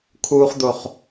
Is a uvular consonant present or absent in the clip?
present